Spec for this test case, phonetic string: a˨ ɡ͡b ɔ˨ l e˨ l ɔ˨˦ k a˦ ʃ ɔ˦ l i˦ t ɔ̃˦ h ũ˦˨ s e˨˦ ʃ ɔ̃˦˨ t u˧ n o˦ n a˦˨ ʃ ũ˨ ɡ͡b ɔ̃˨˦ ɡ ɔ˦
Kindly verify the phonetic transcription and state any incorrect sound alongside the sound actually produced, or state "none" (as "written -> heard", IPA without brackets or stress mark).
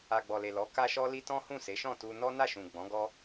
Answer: o˦ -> ɔ˦